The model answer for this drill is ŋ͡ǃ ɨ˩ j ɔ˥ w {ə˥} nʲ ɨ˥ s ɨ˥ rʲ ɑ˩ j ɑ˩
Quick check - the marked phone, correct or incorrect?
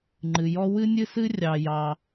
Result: incorrect